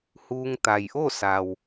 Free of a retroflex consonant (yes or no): yes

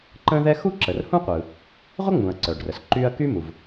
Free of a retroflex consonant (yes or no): no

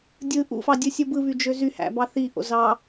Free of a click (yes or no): yes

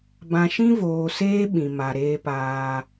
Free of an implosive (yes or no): no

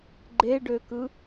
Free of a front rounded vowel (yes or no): no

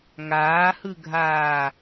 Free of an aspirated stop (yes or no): yes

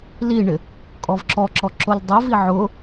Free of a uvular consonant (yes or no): yes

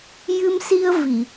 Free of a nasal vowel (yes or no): yes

